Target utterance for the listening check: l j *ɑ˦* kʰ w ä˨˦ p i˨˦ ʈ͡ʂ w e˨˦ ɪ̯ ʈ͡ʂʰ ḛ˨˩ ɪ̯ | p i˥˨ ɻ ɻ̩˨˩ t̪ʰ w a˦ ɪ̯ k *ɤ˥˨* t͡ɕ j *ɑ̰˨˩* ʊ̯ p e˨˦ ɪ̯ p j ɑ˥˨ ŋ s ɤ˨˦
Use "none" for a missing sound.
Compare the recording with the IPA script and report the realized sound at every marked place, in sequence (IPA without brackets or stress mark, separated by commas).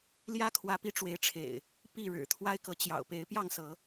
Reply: ä˦, ɤ˨˦, ɑ̰˨˩